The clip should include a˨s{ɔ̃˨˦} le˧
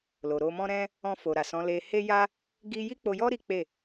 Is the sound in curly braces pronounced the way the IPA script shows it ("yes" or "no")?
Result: yes